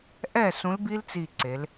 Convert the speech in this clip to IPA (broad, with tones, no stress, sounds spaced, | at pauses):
ʔ ɛ˥˩ s ũ˨˥ l b i˦˥ l t͡s i˧˩ ǀ e˩˧ l